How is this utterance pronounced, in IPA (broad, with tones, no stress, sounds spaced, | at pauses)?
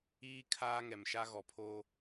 iː˦ kʰ aː˦ ŋ ɛ˨ m ʃ a˦ ɣ ɔ˨ pʰ oː˦